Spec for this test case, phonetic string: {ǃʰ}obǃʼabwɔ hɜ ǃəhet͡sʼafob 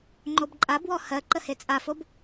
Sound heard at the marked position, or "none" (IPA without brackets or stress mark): ŋ͡ǃ